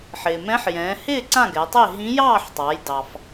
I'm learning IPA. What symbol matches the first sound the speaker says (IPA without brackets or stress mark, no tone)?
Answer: ħ